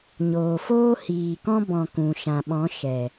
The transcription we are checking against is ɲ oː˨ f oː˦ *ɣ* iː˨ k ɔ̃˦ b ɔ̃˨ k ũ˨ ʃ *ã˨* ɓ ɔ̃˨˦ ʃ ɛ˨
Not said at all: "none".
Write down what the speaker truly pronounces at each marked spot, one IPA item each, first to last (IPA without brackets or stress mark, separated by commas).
h, ã˨